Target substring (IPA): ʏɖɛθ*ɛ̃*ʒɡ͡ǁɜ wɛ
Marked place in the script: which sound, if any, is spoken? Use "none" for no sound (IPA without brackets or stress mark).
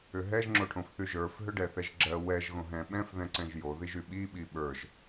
ɛ